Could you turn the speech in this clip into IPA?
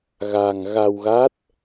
ɣ a˧ ŋ ɣ a˧ w ɣ a˦˥ t̚

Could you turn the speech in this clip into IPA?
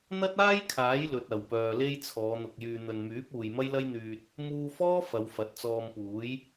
n̪ ɐ˥ t̚ aː˥ j kʰ aː˨˥ j l ɵ˧ t̚ ɐ˨˧ w p œː˧ l e˥ j t͡sʰ ɔː˨˧ n̪ ʊ˨ k̚ j yː˨ n̪ ɵ˨ n m yː˨˥ p̚ uː˨ j m ɐ˥ j l ɐ˥ j n̪ yː˧ t̚ | m uː˧ f ɔː˥ f ɐ˨˧ w f ɐ˨˥ t̚ t͡s ɔː˧ m p uː˨˥ j

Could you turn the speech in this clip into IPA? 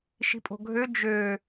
ʃ i̤ pʼ o̤ ɡʱ ø d͡ʒ ø

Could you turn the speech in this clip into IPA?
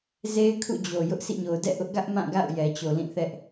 z e˦ ɪ̯ kʰ ṵ˦˨ d͡ʑ o˨ j ʊ˦ ʔ sʰ ḭ˦˨ ɲ o˨ ʊ̯ d ɛ̰˦˨ ʔ ʊ˦ ʔ ɡ ä˦ ʔ m ã˦˨ ɡ a̰˦˨ ʊ̯ j ɛ˨ t͡ɕ o˨ l ĩ˦˨ θ ɛ˦ ʔ

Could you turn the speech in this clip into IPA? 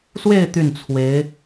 s w e˥˧ ɪ̯ t̪ y˥˩ n t͡sʰ w e˧˥ ɪ̯

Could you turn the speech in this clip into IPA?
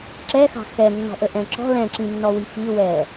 ǁ ɛ x ɑ̤ x ɛ nː ɔ̤ ʔ ə ʔ ɛ̃ ǁ ɔ̤ l ɛ̃ ǁ ĩ nː ɔ w i f i w ɛ

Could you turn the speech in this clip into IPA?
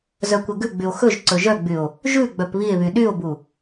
z œ kʷ ɛ ɡ ʉ ɡ͡b y o̯ x ɵ ʒ ǀ ɵ ʒ œ ɡ͡b y o̯ | ʒ ʉ ɡ͡b œ p β i e̯ β y ɗ y o̯ b u

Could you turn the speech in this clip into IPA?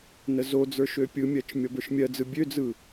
n ə z o d͡z ə˞ ʃ ø pʲ ɯ mʲ ɜ t͡ʃ mʲ ɔ b ə˞ ʃ mʲ ɜ d͡z ɯ bʲ ø d͡z ɯ

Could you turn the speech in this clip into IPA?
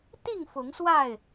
t̪ i˥˨ ŋ f ʊ˨˦ ŋ s w a˥˨ ɪ̯

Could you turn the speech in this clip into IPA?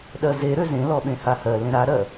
ɗ ɜ z e ɾ ø z ẽ l ɔ ɓ ẽ h a h ɜ l ẽ ɾ a ɾ ɜ

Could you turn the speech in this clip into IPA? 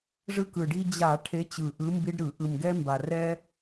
ʐ ɯ˦ k ɯ˨˩ ɖ i˦ d͡ʑ a˧˩˧ ʈʰ e˨˦ t͡ɕ ɯ˨˩ ʔ ɯ˨˦ m b i˦ ɖ ɾ ɯ˧˩˧ ʔ ɯ˨˩ m ɡ ɛ˦ m b a˨˩ r ɛ˦

